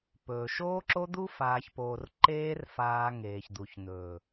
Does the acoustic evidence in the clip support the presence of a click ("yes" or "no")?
yes